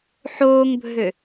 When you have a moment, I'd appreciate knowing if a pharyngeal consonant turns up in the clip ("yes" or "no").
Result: yes